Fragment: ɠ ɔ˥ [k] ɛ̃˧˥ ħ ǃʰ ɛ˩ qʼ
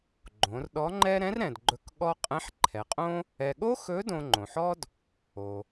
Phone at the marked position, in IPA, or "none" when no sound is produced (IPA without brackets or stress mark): qʼ